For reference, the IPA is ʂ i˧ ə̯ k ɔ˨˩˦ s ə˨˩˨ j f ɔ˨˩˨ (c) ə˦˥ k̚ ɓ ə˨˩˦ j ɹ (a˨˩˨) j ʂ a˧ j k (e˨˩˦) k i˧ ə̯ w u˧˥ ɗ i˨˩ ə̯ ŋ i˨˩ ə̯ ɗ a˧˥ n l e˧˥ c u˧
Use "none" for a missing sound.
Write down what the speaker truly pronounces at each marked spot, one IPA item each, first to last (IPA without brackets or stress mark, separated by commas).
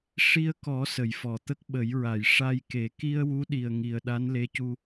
t̪, a˨˩˨, e˨˩˦